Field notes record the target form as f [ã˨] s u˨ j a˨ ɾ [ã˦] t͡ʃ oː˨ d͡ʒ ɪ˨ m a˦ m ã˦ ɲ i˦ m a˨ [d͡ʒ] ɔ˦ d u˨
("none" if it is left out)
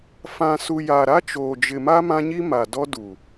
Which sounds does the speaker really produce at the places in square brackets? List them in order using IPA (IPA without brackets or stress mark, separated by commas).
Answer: ã˨, a˦, d